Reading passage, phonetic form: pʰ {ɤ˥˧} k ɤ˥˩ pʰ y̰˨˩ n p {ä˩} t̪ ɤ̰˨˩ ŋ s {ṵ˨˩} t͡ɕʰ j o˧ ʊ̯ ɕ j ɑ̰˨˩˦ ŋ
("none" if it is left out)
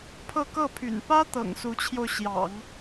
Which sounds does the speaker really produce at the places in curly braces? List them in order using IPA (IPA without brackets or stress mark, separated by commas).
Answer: ɤ˥˧, ä˥, u˧˥